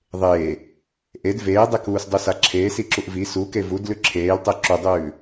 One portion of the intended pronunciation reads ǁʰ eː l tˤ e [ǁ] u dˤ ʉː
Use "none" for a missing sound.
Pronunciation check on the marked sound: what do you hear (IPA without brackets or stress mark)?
ǁ